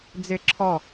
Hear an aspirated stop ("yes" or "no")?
yes